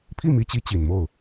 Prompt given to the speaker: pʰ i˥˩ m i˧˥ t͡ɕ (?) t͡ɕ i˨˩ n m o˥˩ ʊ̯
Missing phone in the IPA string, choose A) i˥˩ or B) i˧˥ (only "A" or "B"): B